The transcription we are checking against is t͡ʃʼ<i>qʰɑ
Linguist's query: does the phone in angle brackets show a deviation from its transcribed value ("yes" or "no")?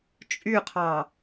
yes